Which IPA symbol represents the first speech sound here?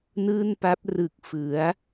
n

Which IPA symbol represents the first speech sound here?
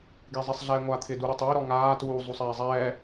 ɡ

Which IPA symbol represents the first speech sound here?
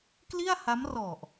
k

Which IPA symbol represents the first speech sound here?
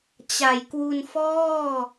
t͡ɕ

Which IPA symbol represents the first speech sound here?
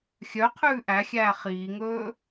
xʲ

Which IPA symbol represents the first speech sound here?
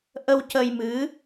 ʔ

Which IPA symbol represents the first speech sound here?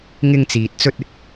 ŋ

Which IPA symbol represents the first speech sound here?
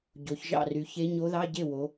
ɟ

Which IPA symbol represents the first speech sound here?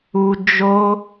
u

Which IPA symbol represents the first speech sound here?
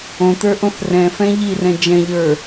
õ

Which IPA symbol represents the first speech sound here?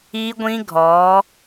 i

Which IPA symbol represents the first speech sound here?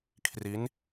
kʰ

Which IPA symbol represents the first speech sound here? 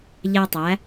ʎ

